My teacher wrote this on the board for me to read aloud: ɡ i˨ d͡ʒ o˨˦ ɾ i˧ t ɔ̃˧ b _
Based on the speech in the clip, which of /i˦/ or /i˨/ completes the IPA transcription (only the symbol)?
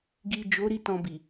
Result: i˨